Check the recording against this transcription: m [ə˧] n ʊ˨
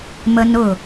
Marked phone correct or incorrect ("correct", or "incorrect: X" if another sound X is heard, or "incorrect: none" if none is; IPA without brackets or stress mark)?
correct